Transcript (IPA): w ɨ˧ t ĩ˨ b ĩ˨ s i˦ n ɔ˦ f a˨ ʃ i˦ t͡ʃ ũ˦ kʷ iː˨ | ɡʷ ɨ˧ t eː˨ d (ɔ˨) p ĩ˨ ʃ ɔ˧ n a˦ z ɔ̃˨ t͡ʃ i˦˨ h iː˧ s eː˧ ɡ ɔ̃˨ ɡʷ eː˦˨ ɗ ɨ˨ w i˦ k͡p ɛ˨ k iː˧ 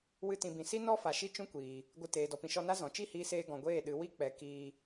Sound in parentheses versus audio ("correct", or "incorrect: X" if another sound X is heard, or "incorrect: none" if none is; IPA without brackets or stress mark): correct